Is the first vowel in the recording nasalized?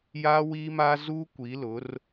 no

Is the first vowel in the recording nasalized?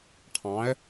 yes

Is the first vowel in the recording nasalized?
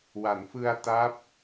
no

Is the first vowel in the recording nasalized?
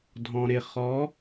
yes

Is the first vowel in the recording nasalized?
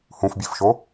yes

